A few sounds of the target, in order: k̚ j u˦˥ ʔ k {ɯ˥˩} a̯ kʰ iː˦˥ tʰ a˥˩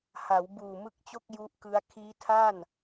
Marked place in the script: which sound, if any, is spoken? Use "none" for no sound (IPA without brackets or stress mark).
ɯ˦˥